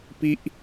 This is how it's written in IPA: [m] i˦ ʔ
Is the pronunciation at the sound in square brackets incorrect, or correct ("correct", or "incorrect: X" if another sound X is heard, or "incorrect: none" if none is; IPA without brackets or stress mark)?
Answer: incorrect: p